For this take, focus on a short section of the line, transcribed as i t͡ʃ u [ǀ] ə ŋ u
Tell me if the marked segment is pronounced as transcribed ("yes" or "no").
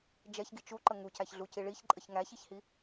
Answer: no